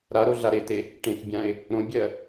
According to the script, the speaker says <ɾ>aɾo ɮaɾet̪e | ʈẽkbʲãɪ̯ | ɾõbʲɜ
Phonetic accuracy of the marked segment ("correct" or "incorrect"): correct